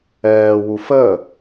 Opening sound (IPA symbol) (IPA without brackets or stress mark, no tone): ɛː